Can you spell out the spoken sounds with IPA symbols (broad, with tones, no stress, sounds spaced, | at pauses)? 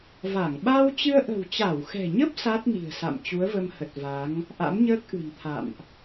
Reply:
v a˧˩ ŋ ɓ a˧ w t͡ɕ ɨ˧ ə̯ ʔ ə̤˨˩ w t͡ɕ a˧˩ w x ɛ̤˨˩ ɲ ə˦˥ p̚ s a˦˥ t̚ n i̤˨˩ ə̯ s a̰˧˨ m t͡ɕ u˨˦ ə̯ v ə˧ m h ə˨˩ t̚ v a˨˦ ŋ | ʔ a̰˧˥ m ɲ əː˦˥ k̚ ʔ ɨ̤˨˩ n t̪ʰ a̰˧˨ m ʔ